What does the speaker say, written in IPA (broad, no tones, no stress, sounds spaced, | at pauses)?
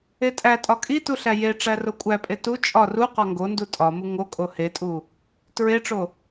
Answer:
e tʼ æ tʼ ɒ kʼ i t u ɬ æ j e ʈ͡ʂ æ r o kʷʼ æ pʼ e t u t͡ʃʼ ɒ r u q ɒ ŋ ɡ o n d u tʼ ɒ m u ŋ o kʼ o h e tʼ u | t ɹ e ʈ͡ʂ o